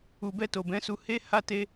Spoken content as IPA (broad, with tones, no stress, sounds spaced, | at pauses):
u˨ b ɛ˧ t o˨ b ɛ̃˨˦ s u˧ h e˦ h a˦ t e˦